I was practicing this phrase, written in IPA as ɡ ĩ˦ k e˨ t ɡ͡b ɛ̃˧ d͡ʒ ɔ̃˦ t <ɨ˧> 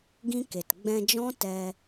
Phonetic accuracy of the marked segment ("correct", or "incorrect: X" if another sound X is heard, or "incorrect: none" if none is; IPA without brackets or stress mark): incorrect: ɛ˧